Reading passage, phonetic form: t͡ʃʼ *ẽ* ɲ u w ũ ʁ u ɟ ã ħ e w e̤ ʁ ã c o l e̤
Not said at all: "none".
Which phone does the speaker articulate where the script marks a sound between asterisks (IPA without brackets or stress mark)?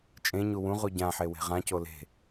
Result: ẽ